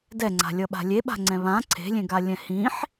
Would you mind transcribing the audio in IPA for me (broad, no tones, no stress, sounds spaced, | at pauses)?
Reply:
d ɛ ŋ͡ǀ a̤ lʲ ʌ ɓ a̤ lʲ e ɓ a̤ ŋ͡ǀ ɛ̃ β ã ǀʰ e̤ lʲ ẽ ɡ a lʲ ɛ̃ h ĩ ħ